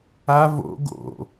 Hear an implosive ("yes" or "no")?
no